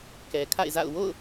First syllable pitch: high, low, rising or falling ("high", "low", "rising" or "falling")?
low